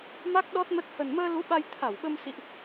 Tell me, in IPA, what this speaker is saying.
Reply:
m a˦˥ k̚ ɗ ɔ˦˥ t̚ m ə˦˥ t̚ h ə˨˩ n m əː˧ l u˨˦ ɓ a˧ j t̪ʰ a˧˩ w ɓ ə˧ m s ḭ˧˨ ʔ

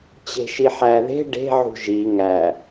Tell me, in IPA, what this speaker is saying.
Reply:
t͡ɕ e̤ ʃ i ħ æ ð e̤ ɖ e̤ ʕ ṳ ʒ i ŋ æ

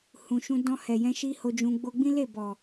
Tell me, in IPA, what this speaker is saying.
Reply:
h ũ˨ ʃ ũ˧ d ɔ̃˧ h ɛ˨ j ɛ̃˧ ʃ i˦ h o˧ d͡ʒ ũ˧ ɡ͡b o˧ ɡ͡b ĩ˦ l e˦˨ b ɔ˨

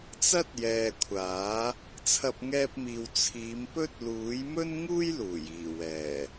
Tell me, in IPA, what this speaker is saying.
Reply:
t͡s ɐ˥ t̚ j ɛː˨ kʷʰ aː˨˥ | t͡sʰ ɐ˧ p̚ ŋ ɛː˧ p̚ m iː˨ w t͡sʰ iː˨˧ m p ɵ˥ t̚ l uː˨˥ j m ɵ˥ n ŋ uː˥ j l uː˨˩ j iː˨˩ w ɛː˨˩

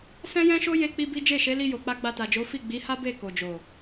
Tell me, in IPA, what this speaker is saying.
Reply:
s ɛ̃˦ j ɛ̃˦ ʃ o˦ j e˦ k͡p i˦ b i˦ d͡ʒ e˦˨ ʃ e˨˦ l i˧ j o˨ k͡p a˧ ɡ͡b a˧ t a˨ d͡ʒ o˨˦ f i˦˨ ɡ͡b i˨˦ h a˦ b e˦˨ k o˨ d͡ʒ o˨

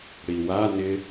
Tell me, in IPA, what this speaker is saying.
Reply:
ɽ i w a n ɪ

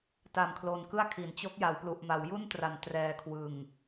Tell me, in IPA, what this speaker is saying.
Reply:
t a˨˩ m kʰ l o˨˩ n k ɯ˥˩ a̯ kʰ i˩˦ n t͡ɕ o˦˥ k̚ j a˩˦ w p l u˨˩ ʔ m a˩˦ w j u˥˩ n t r a˩˦ n t r ɛː˨˩ kʰ w ɯ˨˩ ŋ

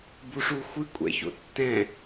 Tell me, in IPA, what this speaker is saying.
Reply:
b u ʂ u xʷ ɨ kʷʼ ɛ̰ ç o̰ tː ɛ̃

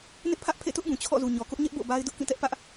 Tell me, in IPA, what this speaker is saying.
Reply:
n ɪ˦ ʔ pʰ ä˦ ʔ pʰ ḛ˦˨ t ʊ˦ ʔ b ũ˨ t͡ɕʰ ɔ̰˦˨ z u˨ ɲ ɔ˨ k ʊ˦ ʔ ɲ ɛ˦ ʔ b o̰˦˨ b a˦ ɪ̯ d ʊ˦ ʔ k ĩ˦˨ t ɛ˦ ʔ p ä˦ ʔ

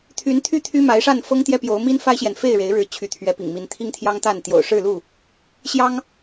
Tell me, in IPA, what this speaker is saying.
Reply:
t̪ʰ y˨˦ n t̪ʰ y˦ t̪ʰ y˦ m a˨˦ ɪ̯ ʂ a˥˨ n f ɤ˦ ŋ t̪ j ɛ˦ p j o˨˦ ʊ̯ m i˦ n f a˦ ɪ̯ ɕ j ɛ˨ n f e˥˨ ɪ̯ ɻ e˨˦ ɪ̯ ɻ ɻ̩˨˦ t͡ɕʰ y˨˦ t̪ʰ ɥ ɛ˨˦ p ḭ˨˩ ŋ m i˨˦ n t̪ʰ i˦ ŋ t̪ʰ j ɑ˦ ŋ t̪ a˥˨ n t̪ j o̰˨˩ ʊ̯ ʂ ɻ̩˥˨ l u˥˨ | ɕ j ɑ˦ ŋ

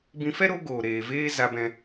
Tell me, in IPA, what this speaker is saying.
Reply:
b ĩ˧ f ɛ˦ ɾ o˨˦ ɡ oː˨ ɾ eː˨ v eː˦ z a˧ b ɛ̃˧

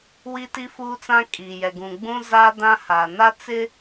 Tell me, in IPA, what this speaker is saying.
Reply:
w i˦ t i˦ f uː˦ t͡s ã˦ kʼ iː˨ j ɛ˨ ɡ ũ˨ ɡ͡b ũ˦ z aː˦ d ã˦ h a˨ n a˦ t͡s ɪ˦

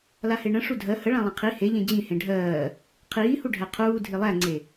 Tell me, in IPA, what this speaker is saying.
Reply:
l a h e ɳ ə̃ ʂ u dʱ ɜ h ə ɭ ã lˠ ã qʰ i h e ʎ ẽ d͡ʑ ĩ h ẽ ɖʱ ɜː | qʰ iː h u ɖʱ æ qʰ uː dʱ i lˠ æ ŋ͡ǀ e

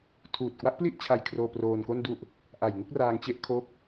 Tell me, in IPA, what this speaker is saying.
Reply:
tʰ uː˨˩ t̚ k w a˦˥ ʔ p l i˥˩ ʔ t͡ɕʰ a˧ j kʰ r oː˧ p r oː˧ n k o˥˩ n d u˥˩ ʔ | ʔ a˨˩ j ŋ u˦˥ k̚ r aː˧ ŋ t͡ɕ e˦˥ ʔ kʰ o˦˥ k̚

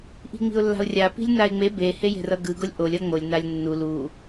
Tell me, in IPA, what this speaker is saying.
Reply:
ʔ i̤ ŋ͡m i̤ ʊ̯ lː a̤ ʊ̯ rʲ a p i̤ lʲ n a ɪ̯ ŋ͡m e b e h e j e̤ r ʌ ɡ ɯ ɡ o lʲ ʔ o lʲ ʌ ŋ͡m o lʲ n a lʲ nː u l u

